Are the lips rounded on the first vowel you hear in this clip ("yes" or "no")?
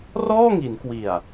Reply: yes